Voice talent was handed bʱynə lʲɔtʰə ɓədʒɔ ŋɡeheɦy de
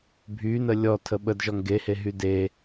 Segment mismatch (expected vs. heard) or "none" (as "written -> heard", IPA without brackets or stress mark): none